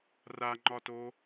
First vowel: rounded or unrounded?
unrounded